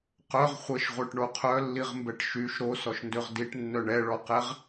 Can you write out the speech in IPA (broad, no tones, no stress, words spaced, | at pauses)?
qœʁ χʷəʃʁʷœʈ ɳoqʰœlːiʁmbɛʈ ʃyʃ ɾosɔʃndøʁ diʈnːœ ɳɛɭɔqɛʁ